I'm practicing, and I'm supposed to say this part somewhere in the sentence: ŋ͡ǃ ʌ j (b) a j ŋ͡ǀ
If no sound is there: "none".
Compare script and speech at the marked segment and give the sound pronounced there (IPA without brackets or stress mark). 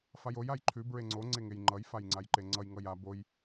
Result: f